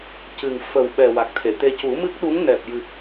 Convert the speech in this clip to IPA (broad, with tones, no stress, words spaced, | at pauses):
cɨ˨˩ŋ fə˨˩w ɓɛ˨˩wa˨˩k̚t̪ʰe˨˩˨t̪e˧ cu˨˩˦mɨ˦˥k̚ɗu˧˥ŋ nɛ˨˩p̚jɨ˨˩k̚